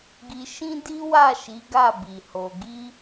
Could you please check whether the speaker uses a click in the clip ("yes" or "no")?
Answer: no